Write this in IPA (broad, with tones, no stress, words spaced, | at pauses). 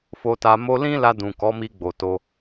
fo˧ta˧ mo˧lĩ˦la˧ dũ˨kɔ˨˦mi˧ ɡ͡bo˨to˧